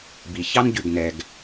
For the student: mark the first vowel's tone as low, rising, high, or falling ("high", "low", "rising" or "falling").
low